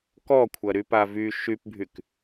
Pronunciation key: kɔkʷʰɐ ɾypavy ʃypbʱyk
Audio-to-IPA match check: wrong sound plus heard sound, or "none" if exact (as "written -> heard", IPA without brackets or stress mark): none